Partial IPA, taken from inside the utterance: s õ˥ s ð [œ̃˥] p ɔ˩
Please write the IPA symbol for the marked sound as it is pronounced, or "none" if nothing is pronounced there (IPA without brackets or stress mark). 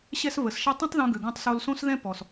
ɛ̃˥